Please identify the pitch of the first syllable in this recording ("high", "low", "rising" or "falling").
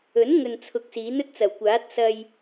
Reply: rising